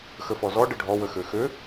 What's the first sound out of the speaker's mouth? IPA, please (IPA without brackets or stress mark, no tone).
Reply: x